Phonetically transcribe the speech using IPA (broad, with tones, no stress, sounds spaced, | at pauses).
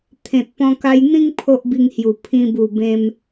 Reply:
t̪ʰ ẽ˨ t̚ p ɔ̃˧ k a˧ j n̪ ĩ˦ ŋ pʰ o˦ ʔ b i˧ ŋ h j u˨˩ pʰ ĩ˧ b u˨˩ b ẽ˧ m